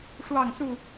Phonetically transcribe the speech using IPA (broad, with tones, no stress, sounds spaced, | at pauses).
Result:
ʂ w ɑ˥˨ ŋ s u˥˨